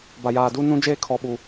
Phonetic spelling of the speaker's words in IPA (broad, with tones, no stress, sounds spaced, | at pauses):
b a˨ j aː˨ d u˦ n ũ˦ d͡ʒ eː˦ kʰ ɔ˦ ɓ u˦